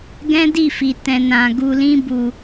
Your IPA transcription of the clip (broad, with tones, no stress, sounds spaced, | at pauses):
ɡ ɛ̃˦ d i˦˨ f i˨ t ɛ̃˨ n ã˨ ɡ u˧ l ĩ˦ b u˧